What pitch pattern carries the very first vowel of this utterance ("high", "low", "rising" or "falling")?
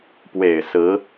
low